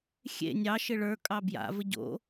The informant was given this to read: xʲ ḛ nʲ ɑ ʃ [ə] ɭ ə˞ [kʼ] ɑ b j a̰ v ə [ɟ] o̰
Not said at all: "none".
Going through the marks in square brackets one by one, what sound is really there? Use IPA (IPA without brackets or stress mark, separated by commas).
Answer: ɪ, kʼ, ɟ